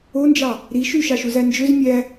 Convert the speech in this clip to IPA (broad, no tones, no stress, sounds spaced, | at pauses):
o n d͡ʒ ɑ | ɾ i ʃ y ʃ ɑ ʃ u z æ n d͡ʒ ø z mʲ æ